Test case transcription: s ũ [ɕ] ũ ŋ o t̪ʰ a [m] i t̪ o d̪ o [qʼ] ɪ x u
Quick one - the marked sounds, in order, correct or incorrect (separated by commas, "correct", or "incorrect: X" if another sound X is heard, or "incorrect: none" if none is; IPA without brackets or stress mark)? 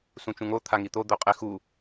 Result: incorrect: t͡ʃ, incorrect: ŋ, correct